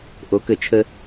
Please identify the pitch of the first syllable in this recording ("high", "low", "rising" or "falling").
rising